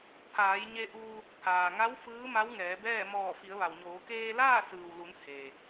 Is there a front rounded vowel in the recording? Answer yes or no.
no